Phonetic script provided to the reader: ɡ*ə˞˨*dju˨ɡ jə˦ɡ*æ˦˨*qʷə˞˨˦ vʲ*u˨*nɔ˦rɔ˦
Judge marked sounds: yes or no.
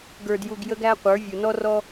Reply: yes, no, yes

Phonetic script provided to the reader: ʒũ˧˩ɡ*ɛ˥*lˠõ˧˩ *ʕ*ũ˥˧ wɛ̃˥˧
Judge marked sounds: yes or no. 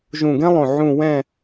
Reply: no, yes

